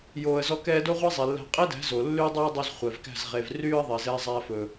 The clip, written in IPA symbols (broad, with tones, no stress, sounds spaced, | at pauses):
j oː˧ ə̯ z ɔ˦ k ɛː˦ d o˦ ʁʷ ɛ˦ zˤ i˨ lː æ̤˧ qʼ e˦ d æ̤˨˦ z o˨ lː yː˦ dˤ oː˦ ə̯ dˤ i˧ z χʷ ɛ˨ v k æ̤˦˨ z ʁ e˨ v r yː˦ ə̯ ðˤ e˨ z ɛː˦ zˤ æː˧ f ɵ˨